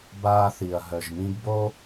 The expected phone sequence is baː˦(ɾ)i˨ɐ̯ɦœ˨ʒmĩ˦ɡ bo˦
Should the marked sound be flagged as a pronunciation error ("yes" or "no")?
yes